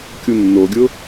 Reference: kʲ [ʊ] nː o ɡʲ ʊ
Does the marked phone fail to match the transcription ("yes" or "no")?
yes